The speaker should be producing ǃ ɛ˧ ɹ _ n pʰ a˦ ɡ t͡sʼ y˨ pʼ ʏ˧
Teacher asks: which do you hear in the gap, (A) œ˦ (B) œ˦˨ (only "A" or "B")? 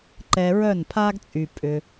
B